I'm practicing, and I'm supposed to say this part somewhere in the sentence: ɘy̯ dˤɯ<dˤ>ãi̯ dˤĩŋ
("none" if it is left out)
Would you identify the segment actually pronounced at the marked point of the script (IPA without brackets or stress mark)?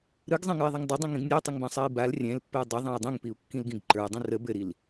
ðˤ